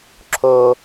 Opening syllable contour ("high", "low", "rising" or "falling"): high